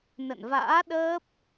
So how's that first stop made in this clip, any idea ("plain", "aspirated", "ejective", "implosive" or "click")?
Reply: implosive